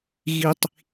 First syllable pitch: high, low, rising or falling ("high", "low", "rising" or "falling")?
high